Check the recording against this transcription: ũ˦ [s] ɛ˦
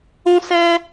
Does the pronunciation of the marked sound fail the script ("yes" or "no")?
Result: no